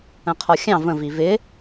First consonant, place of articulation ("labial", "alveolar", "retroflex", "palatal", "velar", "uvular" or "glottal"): uvular